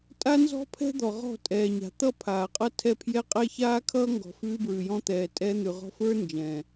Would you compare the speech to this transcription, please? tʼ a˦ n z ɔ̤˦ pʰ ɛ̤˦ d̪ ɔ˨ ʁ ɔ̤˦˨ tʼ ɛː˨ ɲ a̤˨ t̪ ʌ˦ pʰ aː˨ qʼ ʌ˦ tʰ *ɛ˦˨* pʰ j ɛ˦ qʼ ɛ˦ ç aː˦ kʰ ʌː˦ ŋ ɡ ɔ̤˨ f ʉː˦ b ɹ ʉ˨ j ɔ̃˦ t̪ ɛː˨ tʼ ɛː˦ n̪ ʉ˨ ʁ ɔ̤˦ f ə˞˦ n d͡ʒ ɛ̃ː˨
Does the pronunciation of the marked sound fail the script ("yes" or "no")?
no